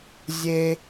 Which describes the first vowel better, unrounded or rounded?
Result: unrounded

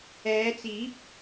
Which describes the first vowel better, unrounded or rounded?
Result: unrounded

